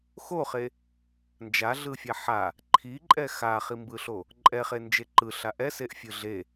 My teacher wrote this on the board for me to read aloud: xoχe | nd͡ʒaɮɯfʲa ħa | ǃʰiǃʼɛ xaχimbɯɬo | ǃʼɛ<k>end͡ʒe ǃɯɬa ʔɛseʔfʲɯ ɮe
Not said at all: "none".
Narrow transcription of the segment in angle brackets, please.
χ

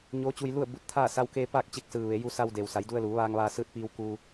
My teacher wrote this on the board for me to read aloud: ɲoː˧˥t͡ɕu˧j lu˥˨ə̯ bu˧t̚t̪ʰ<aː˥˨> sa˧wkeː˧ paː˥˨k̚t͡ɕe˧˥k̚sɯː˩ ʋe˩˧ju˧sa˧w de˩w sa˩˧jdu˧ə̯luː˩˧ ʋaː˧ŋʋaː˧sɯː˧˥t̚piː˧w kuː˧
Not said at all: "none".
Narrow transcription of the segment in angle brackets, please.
aː˥˨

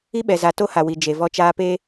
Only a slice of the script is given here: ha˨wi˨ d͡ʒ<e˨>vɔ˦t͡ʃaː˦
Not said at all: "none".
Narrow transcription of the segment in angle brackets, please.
e˨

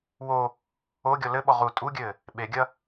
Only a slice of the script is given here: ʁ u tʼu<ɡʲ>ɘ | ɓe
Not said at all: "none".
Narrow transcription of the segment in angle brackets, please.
ɡʲ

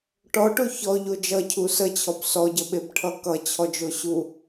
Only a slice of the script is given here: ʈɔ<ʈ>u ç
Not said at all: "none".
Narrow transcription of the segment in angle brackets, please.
ʈ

